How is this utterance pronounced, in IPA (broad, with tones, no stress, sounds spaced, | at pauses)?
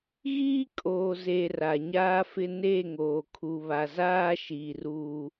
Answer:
ɣ iː˦ kʼ oː˨ z e˨ r a˨ ɲ aː˦ f ɪ˦ n e˦˨ ŋ oː˨ kʰ u˨ β a˨ z aː˦ ʃ iː˨ r u˦